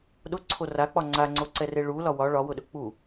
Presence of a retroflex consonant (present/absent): present